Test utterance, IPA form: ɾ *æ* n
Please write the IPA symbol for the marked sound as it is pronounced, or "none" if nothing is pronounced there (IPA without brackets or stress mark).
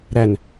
æ